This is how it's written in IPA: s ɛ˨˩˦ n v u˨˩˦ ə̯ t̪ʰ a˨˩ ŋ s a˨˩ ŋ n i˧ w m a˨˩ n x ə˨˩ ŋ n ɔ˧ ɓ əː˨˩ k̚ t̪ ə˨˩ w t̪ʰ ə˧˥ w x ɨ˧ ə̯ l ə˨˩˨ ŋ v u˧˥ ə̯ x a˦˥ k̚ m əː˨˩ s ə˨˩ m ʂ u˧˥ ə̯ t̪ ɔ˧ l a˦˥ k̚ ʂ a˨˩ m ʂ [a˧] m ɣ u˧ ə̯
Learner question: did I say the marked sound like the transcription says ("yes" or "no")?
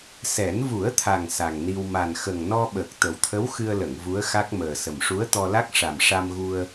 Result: yes